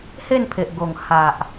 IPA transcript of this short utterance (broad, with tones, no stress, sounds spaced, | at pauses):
h e˥˧ n pʰ e˨ ʔ ɡ o˨˩ ŋ h a˨ ʔ